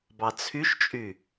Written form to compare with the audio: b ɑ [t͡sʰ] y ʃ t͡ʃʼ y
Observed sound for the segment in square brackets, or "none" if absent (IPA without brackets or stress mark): t͡sʰ